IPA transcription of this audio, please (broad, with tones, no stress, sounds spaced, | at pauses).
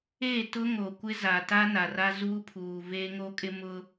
e˦˨ t ʊ˦ ŋ o˨ kʷ ɪ˦ z a˨ t a˦ n a˨ r a˦ z uː˦ pʰ uː˨ v eː˦ ŋ o˦ kʼ ɪ˦ m ʊ˦